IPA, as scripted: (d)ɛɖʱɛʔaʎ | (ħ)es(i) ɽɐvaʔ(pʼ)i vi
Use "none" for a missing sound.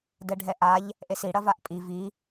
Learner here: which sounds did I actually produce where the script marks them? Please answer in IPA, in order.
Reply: d, ʔ, i, pʼ

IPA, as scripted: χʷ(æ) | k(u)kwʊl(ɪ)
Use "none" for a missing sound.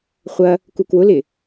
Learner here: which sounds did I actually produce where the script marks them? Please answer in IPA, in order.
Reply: ɐ, u, ɪ

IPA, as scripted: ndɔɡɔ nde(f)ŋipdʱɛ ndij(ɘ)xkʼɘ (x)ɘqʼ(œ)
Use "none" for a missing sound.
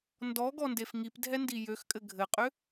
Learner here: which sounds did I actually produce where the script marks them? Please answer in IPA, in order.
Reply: f, ø, ɡʱ, ø

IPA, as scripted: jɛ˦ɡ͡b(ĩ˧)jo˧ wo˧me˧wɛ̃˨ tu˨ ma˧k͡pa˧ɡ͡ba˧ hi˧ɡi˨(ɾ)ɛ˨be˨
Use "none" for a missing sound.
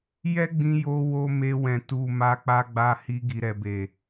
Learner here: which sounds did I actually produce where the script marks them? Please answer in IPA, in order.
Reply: ĩ˧, ɾ

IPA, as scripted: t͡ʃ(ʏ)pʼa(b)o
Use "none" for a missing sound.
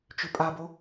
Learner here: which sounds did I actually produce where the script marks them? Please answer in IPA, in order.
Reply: ʏ, b

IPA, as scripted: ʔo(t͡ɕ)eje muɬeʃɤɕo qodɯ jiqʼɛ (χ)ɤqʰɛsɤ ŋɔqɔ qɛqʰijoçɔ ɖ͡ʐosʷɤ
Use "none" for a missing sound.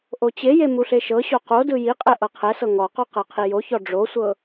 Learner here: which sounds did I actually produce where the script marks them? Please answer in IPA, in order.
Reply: t͡ɕ, ʔ

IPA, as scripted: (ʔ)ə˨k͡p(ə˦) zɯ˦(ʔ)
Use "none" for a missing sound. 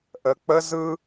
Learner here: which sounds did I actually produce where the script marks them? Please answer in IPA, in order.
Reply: ʔ, ə˦, none

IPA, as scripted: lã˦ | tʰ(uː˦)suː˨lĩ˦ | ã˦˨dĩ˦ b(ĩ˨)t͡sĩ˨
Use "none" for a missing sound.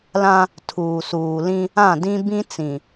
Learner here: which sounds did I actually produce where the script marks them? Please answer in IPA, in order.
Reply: uː˨, ĩ˦

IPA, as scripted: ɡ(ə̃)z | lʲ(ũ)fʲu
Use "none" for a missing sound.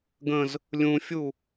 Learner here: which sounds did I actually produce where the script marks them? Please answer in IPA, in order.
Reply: ə̃, ũ

